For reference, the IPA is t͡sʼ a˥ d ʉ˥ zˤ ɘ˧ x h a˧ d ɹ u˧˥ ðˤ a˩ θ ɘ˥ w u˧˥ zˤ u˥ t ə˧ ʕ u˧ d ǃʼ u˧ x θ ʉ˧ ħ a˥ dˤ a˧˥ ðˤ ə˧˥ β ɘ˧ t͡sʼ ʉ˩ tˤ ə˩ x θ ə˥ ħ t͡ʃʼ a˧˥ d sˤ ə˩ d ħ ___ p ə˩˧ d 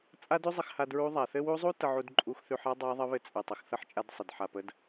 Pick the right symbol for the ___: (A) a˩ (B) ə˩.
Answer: A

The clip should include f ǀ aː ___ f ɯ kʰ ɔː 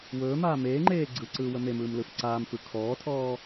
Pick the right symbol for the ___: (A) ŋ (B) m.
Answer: B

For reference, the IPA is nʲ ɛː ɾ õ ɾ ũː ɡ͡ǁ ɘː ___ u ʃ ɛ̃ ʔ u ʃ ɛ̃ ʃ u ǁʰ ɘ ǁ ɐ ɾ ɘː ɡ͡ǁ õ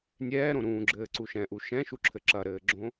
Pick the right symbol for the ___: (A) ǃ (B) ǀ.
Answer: B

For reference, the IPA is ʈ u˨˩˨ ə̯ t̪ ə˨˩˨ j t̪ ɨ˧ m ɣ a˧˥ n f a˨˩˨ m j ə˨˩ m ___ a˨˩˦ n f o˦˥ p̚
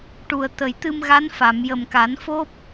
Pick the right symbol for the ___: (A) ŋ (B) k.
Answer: B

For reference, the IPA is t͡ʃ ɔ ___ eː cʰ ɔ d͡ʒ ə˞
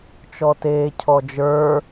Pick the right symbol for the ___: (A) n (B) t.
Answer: B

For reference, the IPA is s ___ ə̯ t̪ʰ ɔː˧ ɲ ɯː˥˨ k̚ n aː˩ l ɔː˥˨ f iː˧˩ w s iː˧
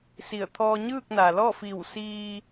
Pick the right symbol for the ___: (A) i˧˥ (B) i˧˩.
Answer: B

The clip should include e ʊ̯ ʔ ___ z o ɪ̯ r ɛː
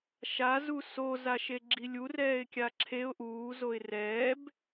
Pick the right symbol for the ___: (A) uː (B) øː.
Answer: A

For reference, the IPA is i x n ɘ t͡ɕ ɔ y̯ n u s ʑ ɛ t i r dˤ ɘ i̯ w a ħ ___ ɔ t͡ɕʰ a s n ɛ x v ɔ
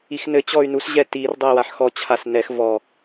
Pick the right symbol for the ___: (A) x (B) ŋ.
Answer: A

